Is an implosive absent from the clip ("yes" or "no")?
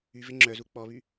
yes